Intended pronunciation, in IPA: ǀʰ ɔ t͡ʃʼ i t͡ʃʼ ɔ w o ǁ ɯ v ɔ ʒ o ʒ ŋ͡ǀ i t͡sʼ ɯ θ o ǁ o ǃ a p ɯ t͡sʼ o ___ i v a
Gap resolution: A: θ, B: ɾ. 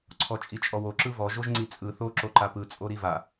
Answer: B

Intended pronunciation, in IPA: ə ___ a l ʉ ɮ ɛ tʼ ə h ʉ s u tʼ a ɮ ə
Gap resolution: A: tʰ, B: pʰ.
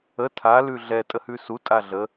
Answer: A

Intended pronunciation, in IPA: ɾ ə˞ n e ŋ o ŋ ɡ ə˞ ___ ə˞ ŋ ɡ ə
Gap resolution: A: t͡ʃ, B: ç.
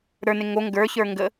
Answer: B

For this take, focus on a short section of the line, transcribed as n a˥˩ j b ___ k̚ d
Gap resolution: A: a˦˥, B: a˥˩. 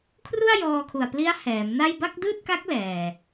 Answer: B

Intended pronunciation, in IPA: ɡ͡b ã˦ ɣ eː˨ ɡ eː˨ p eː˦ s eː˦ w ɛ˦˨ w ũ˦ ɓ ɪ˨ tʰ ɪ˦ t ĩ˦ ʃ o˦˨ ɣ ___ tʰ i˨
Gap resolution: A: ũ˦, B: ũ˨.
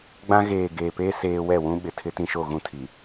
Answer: A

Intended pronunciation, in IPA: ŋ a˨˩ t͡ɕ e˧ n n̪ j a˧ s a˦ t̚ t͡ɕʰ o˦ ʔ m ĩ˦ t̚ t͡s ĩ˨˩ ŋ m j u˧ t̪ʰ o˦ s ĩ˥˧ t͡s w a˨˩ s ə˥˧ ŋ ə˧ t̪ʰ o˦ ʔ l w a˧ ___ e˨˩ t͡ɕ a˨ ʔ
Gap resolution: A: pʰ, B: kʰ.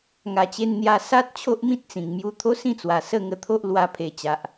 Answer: A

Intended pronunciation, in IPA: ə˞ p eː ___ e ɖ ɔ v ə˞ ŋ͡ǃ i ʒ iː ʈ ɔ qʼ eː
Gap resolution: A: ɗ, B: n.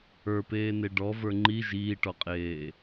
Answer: B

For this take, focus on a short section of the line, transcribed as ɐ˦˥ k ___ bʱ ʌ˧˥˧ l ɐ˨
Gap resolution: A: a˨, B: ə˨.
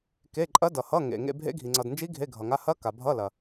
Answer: A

